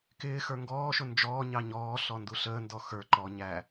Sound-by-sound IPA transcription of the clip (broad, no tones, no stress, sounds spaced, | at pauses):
k ɪː x ə˞ ŋ ɡ ɔː ʃ ʊ n d͡ʒ ɔː ɲ ɑ ɲ ɔː ɬ ɔ n d u ɬ əː n d ɔ x ə˞ ǃ ɔ ɲ æ